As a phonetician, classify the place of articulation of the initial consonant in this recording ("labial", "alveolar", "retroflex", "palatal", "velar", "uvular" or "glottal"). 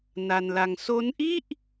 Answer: alveolar